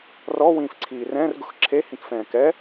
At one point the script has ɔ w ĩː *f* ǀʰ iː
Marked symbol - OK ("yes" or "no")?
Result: yes